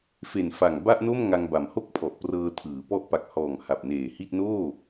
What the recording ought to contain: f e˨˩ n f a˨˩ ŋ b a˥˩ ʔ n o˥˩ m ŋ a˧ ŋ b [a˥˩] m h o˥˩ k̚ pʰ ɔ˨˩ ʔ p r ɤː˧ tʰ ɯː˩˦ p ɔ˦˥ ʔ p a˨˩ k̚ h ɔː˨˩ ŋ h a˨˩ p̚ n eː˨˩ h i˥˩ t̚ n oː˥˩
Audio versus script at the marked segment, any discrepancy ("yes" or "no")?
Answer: yes